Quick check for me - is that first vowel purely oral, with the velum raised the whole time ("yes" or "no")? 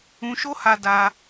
no